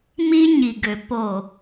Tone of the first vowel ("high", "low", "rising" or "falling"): high